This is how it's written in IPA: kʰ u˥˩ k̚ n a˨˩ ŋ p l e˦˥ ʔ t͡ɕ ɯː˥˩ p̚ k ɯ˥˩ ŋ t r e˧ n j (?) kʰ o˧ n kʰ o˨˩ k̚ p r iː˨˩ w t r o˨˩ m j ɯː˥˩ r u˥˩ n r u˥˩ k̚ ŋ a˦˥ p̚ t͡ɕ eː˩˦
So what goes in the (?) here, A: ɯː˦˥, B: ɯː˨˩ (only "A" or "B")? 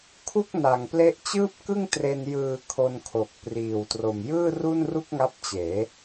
B